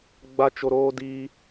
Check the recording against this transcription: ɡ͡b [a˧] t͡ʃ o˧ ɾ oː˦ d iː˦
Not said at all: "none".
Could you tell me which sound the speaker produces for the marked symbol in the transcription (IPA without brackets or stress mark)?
a˧